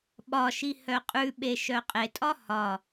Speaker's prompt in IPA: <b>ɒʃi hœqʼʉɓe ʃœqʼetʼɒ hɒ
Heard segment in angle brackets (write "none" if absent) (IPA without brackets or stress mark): ɓ